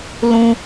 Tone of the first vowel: high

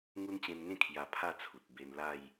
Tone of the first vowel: high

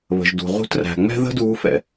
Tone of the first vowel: low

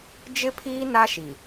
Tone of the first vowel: high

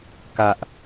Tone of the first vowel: high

